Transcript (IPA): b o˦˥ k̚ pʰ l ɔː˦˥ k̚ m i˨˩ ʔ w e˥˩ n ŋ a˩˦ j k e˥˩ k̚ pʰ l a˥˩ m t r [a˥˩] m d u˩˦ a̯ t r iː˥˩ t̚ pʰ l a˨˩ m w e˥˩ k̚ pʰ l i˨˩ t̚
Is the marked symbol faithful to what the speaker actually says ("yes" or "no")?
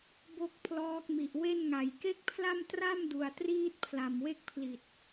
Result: yes